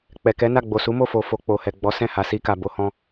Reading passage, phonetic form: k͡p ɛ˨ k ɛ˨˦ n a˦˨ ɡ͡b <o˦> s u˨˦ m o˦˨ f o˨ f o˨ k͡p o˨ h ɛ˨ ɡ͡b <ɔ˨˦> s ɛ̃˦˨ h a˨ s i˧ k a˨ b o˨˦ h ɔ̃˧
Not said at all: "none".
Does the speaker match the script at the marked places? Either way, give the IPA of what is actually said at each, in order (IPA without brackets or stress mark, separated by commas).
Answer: o˨, ɔ˨˦